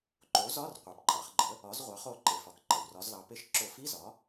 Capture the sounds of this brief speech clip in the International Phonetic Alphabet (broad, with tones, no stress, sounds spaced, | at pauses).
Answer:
ǃ o˩˥ z ɒ˧˥˧ r qʷ e˩˧ p ǃʼ ɑ˩˧ χ ɡ͡ǃ ə˩˥ | ɒ˩˥ z ʁʷ ɑ˩˥ χ o˧˩ ǃ e˩ f ɒ˩ k ǃ ə˩ w r ɒ˩˧ z l ɑ˩˧ p e˧˩ ʃ ǁ o˧˩˧ f i˧˥˧ z ɒ˩˥